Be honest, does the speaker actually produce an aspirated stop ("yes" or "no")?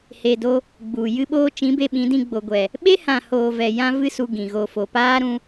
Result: no